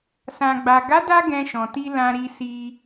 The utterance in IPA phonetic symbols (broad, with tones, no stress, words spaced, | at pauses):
sã˨ɡ͡ba˨ ɡa˨˦da˧ ɡɛ̃˧ʃɔ̃˨ti˧ lã˧ɾi˧si˧